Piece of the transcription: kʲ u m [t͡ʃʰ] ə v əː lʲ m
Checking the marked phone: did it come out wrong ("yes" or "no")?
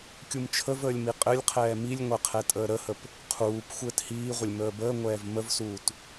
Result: no